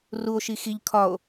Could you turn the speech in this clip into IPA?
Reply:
ruo̯ʃi xiʎ kʰɒo̯

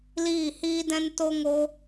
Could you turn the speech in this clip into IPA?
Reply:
liː˦˨hiː˦dɛ̃˦n to˦ŋo˦

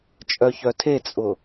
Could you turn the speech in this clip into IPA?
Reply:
t͡ʃʼœçœtʰet͡sʼʊ

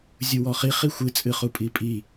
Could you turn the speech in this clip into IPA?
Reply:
zʲuwɔχi χixʷɨ t͡sʼɨχupʼipʼi

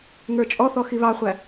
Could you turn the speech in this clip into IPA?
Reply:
ŋə˞t͡ʃʼɔθɔ xiβɑχʷæ

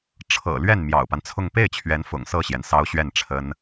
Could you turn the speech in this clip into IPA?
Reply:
ʈ͡ʂʰɤ̰˨˩ lɥɛ˥˩n mjɑ̰˨˩ʊ̯pa˦nt͡sʰʊ˥˧ŋ pe˥˩ɪ̯t͡ɕʰɥɛ˧˥n fʊ̰˨˩ŋsɤ˥˩ɕjɛ˩n sɑ˥ʊ̯ɕɥɛ˥˩nʈ͡ʂʰə˥n

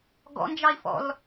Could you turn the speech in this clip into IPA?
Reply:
ɡɔ̰nd͡ʒɑi̯fɔ̰l

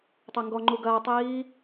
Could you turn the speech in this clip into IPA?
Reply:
tˤɛŋɡɔŋ͡ǃu ɡɐːtˤiː

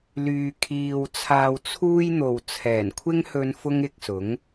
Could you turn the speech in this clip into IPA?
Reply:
lyː˧kʰiː˧wt͡sʰaː˧w t͡sʰuː˥jn̪o˨w t͡sʰɛː˨˩nkʷʰɪ˥ŋhɵ˧n fʊ˥ŋɪ˧k̚sʊ˨˥ŋ

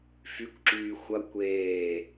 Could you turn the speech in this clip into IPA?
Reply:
fykʷǁyː xʷɐ kʷeː

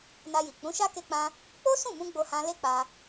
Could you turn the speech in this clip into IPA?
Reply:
na˧ji˨ k͡pũ˨˦ʃa˦ ke˦k͡pã˦ | k͡po˦sũ˦˨mũ˧ ɡ͡bo˧hã˧ le˦k͡pa˧

